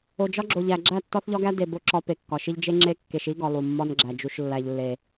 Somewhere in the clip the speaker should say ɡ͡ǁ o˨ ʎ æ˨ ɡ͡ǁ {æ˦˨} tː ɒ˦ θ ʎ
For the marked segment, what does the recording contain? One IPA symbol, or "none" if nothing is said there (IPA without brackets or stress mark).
æ˦˨